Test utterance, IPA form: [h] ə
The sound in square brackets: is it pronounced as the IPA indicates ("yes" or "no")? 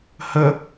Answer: yes